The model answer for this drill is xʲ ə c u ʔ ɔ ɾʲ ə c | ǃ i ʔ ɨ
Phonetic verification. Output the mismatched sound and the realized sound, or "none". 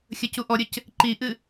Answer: none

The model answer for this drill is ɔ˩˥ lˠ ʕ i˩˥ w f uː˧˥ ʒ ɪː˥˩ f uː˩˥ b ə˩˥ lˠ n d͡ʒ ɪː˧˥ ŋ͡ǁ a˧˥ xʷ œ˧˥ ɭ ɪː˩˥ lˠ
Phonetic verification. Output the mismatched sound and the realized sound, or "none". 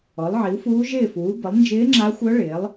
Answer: none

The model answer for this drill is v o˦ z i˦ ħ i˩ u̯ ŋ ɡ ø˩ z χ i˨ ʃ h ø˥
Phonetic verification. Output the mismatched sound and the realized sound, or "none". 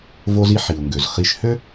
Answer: none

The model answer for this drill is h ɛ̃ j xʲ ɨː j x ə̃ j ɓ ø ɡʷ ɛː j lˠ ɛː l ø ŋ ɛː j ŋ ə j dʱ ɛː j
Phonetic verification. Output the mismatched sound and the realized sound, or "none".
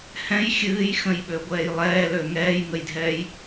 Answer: none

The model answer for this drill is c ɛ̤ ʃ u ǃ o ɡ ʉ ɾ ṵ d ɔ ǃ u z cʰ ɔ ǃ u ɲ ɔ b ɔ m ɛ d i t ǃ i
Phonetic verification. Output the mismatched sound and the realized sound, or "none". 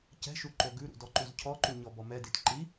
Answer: none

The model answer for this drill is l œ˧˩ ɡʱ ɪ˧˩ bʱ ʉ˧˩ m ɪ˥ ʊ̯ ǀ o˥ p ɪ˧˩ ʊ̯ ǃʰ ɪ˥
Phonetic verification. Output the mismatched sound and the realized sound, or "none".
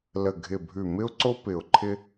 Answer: œ˧˩ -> ə˧˩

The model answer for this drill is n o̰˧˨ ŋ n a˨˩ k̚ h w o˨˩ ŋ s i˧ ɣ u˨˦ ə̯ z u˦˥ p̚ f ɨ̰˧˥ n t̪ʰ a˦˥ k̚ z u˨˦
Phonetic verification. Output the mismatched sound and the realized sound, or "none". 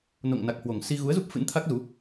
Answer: none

